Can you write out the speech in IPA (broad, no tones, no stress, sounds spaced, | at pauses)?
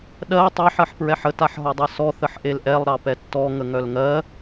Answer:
ɗ ɜ tˤ ɑ ħ ɜ ħ p ɹ ɛ ħ ə t a ħ ɦ ɔ dˤ ɤ s ɔ θ ə ħ ʔ e l ʔ ɛ lˠ ɾ ɑ p ɛ tː ɔ ŋ ə ŋ œ l ŋ ɜ